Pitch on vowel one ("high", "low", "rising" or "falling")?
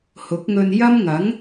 rising